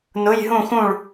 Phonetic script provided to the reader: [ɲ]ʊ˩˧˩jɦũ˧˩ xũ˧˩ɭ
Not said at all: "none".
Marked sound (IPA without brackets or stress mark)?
n